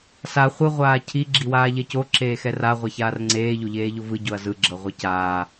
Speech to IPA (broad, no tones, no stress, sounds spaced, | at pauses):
s a χʷ ɯ ʁʷ aː cʰ i ɡ͡ǁ i w aː ʎ ɛ c o ǁ eː x ɛ r a ʁʷ ɛ ç aː r ŋ͡ǀ eː ʎ o ʎ eː ʎ o v ɯ ɟ o ɐ̯ z ɯ ɡ͡ǁ ɤ ʁʷ ɯ c aː